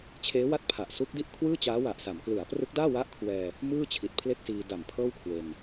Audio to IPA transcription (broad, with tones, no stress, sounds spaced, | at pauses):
t͡ɕʰ eː˦˥ w a˥˩ t̚ pʰ a˨˩ ʔ s u˦˥ k̚ d i˥˩ ʔ kʰ w ɯː˥˩ t͡ɕ aː˦˥ w a˨˩ ʔ s a˩˦ m k l ɯ˩˦ a̯ p r ɯ˦˥ k̚ d aː˥˩ w a˦˥ ʔ kʰ w ɛː˧ | m ɯː˥˩ t͡ɕʰ i˨˩ t̚ pʰ l e˥˩ k̚ s iː˧ d a˨˩ m pʰ ɤː˥˩ w kʰ w e˧ n